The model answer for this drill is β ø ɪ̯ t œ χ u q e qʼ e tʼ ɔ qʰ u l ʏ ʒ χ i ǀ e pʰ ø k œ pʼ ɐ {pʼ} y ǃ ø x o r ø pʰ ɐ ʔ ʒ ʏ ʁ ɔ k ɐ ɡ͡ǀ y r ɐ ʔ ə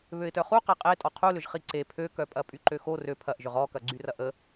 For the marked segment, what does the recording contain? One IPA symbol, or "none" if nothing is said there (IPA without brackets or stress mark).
pʼ